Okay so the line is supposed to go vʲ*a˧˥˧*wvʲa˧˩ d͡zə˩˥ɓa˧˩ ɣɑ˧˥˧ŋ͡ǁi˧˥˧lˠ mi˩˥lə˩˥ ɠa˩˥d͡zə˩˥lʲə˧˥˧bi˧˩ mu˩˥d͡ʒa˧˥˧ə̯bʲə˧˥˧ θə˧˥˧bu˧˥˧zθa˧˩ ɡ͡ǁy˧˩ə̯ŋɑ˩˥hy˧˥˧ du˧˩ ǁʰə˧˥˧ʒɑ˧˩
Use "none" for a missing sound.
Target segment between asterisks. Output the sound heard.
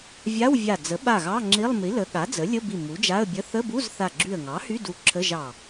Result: a˧˥˧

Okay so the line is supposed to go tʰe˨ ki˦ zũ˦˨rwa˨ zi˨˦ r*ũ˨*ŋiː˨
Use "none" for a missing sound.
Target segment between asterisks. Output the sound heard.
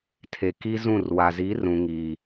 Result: ũ˨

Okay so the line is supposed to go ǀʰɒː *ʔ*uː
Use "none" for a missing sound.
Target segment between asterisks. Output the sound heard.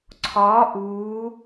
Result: ʔ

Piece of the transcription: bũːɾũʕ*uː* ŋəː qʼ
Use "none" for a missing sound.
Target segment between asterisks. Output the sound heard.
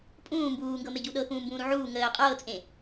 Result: uː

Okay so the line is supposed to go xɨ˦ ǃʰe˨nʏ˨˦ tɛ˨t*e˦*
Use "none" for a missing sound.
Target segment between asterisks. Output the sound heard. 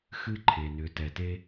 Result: e˦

